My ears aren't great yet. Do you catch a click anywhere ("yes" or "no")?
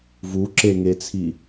yes